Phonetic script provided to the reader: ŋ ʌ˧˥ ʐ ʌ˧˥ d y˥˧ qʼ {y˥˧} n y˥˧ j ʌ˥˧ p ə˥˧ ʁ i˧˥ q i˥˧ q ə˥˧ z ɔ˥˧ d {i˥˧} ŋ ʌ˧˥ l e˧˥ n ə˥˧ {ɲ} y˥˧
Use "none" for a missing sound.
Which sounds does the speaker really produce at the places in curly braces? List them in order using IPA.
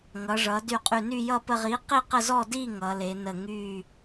y˥˧, i˥˧, ŋ

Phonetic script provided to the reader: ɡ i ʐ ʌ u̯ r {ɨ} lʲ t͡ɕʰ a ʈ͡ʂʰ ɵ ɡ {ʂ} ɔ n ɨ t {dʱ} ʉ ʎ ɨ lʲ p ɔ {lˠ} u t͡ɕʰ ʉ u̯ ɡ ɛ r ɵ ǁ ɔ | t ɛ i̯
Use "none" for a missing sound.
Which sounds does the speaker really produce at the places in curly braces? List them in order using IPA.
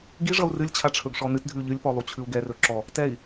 ɨ, ʂ, dʱ, lˠ

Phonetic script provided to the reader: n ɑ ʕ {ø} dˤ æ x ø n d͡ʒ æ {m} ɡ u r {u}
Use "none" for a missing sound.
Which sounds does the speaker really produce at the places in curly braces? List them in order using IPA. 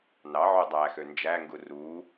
ø, ŋ, u

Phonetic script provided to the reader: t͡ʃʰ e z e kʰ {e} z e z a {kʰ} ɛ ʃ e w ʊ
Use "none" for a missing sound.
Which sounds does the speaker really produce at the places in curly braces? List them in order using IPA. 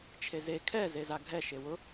ɛ, ɡʱ

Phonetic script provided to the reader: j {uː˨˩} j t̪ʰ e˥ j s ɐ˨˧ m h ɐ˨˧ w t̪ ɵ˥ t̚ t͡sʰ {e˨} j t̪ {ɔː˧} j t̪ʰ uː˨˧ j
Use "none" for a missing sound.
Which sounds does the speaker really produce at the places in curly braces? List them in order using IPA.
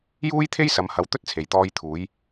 uː˥, e˨, ɔː˧

